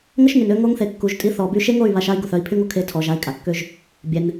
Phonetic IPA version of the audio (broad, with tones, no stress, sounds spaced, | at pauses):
ŋ ə˦ ʃ ŋ y˨ n ø˧ ŋ o˧ ŋ θ e˨ kː u˨ ʒ tʼ i˧ θ ɔ˨ b y˧ ʃ e˦ ŋ o˦˨ y̯ β a˧ ʃ a˦ i̯ ɡ u˨ θ œ˦˨ i̯ pʰ y˦ ŋ o˧ kʰ e˨˦ tʰ ɔ˨ ʒ a˨˦ i̯ kʼ a˨ kː ø˦ ʒ | bʲ ɛ˧ n